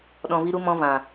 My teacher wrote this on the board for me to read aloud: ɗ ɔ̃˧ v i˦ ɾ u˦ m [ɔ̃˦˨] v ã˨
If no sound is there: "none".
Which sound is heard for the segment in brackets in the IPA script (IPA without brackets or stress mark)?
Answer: ɔ̃˦